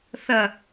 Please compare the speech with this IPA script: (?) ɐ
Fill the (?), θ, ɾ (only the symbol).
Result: θ